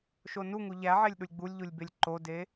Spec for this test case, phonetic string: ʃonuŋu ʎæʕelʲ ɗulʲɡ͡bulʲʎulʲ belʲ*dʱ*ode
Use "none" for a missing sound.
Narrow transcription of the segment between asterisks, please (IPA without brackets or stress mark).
ǃ